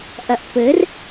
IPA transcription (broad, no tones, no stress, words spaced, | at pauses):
ʔɐʔpɘr